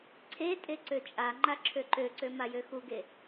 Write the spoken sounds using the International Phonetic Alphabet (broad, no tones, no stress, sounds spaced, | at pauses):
ǀʰ e tʼ e ǀ ø t͡ʃʼ a ŋ͡ǃ a ǁʰ ø ǃ ø ǀ ø m a j ø x u ɡ e